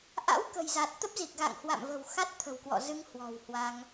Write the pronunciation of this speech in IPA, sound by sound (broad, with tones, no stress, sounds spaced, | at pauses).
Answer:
ʔ a̰˧˥ w k ə̤˨˩ j z a˨˩ t̚ t̪ ə˦˥ p̚ z i˨˩ k̚ ɣ a̰˧˨ ŋ h w a̰˧˨ m v ə̤˨˩ w x a˦˥ t̚ t̪ʰ ə̤˨˩ w k w ɔ̰˧˨ z ɨ˧ ŋ h w ɔ̤˨˩ w h w a˧ ŋ